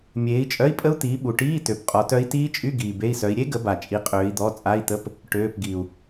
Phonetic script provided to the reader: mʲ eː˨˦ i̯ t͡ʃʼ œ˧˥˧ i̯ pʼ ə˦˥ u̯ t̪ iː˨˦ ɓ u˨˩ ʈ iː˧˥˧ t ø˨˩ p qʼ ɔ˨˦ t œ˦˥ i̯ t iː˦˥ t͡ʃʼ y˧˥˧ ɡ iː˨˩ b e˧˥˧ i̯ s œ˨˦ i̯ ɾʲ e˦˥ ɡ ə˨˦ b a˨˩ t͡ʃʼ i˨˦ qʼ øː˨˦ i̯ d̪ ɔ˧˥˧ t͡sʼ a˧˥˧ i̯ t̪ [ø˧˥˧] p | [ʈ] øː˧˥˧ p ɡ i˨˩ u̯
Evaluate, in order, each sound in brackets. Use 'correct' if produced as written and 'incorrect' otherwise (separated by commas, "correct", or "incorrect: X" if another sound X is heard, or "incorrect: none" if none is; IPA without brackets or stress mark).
incorrect: ə˧˥˧, correct